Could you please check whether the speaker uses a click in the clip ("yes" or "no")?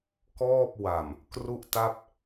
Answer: no